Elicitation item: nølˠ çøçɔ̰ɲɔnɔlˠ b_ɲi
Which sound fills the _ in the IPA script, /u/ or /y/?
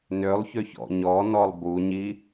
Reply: u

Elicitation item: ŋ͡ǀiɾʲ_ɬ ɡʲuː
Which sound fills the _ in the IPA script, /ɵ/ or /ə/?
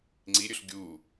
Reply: ɵ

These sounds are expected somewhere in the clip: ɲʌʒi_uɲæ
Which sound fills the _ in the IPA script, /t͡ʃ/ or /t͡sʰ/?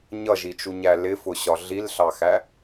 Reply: t͡ʃ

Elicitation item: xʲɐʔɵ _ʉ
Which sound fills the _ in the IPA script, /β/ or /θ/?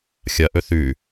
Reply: θ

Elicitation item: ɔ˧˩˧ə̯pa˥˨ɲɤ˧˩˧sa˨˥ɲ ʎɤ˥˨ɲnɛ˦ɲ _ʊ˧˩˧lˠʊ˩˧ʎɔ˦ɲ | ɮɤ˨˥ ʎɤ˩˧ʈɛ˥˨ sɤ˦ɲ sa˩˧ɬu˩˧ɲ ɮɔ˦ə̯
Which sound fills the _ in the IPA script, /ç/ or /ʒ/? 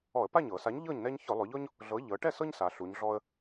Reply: ç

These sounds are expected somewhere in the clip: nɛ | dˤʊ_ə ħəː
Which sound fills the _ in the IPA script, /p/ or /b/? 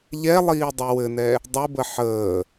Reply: b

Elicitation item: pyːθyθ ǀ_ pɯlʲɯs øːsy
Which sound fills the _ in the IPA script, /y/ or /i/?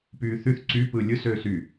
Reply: y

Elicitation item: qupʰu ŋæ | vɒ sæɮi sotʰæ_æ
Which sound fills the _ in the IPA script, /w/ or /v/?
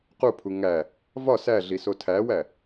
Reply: w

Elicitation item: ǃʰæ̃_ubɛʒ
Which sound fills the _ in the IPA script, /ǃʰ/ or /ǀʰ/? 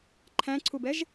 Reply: ǀʰ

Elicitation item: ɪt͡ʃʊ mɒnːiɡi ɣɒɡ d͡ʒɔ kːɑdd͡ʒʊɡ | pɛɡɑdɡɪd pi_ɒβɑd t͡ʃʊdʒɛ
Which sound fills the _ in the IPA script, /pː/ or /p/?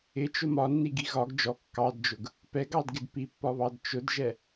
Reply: pː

